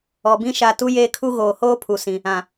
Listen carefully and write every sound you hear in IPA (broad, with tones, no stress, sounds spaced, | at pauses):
ɔ˨ b ĩ˦ ʃ a˨ t u˦ j eː˦ kʰ u˦ ɣ oː˨ h oː˦ pʰ u˨ s ĩ˦ | ã˨